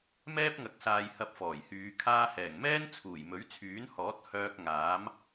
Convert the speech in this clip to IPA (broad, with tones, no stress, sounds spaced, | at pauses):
m ɛː˥ p̚ ŋ ɐ˨˥ k̚ s aː˨ j h ɐ˧ p̚ f ɔː˨˩ j h yː˨˧ kʰ aː˧ h ɛː˨˩ ŋ m ɛː˥ n t͡sʰ uː˨˩ j m ɵ˨˥ ɥ t͡sʰ yː˨˥ n h ɔː˨˥ t̚ h œː˧ k̚ ŋ aː˨˥ m